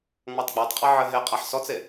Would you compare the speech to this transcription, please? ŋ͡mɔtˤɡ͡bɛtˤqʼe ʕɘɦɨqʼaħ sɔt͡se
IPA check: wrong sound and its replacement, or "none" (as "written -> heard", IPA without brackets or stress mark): ɨ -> e